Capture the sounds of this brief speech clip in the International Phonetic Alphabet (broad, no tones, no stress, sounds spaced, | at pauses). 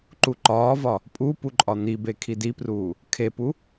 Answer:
ǃ u ǃ ɒː v ɒ | pʼ u p u ǃʼ ɒ n̪ i b e kʰ i d i p r uː | kʰ e p u